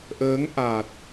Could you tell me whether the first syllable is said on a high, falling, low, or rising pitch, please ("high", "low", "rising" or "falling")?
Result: rising